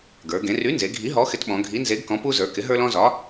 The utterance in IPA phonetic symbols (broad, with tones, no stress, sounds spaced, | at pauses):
ɡ ə˞˩˧ ɡ ẽ˩˧ r y˨˥ n z e˩˧ ɡʱ i˨˥ ɦ ɔ˨˥ x ɪ˨˥ t ɓ ɔ̃˩˧ ɡʱ i˨˥ n z e˨˥ ɡ k ɔ̃˨˥ p u˥ z ə˞˨˥ k ɪ˨˥ ɦ ə˞˥ l ɔ̃˥ z ɒ˨˥